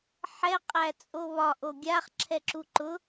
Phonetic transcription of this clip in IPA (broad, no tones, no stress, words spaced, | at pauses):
ħɛ qʼæt͡sʼoβɒ ʔoɡʲaχ ǁʰɛǁuǃʊ